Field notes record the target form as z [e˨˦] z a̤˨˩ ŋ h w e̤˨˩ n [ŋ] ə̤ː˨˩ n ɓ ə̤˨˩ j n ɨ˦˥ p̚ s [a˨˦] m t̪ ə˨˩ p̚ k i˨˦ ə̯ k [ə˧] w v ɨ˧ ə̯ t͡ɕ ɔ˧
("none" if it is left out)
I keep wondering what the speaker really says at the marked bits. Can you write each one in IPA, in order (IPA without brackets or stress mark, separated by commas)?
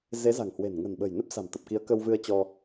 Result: e˨˦, ŋ, a̤˨˩, ə˧